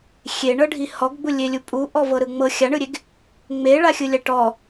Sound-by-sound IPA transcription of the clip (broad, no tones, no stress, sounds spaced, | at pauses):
xʲ e ɳ ɤ ɖʱ i h ɔ ɡ ɡ͡b u lʲ e lʲ u pʼ u ʔ ɔ v ɤ ɾ ɯ ŋ͡m ɤ xʲ a ɳ ɯ ɾʲ e ɡ | ŋ͡m e ɭ a xʲ ɯ lʲ a ʈ ɔ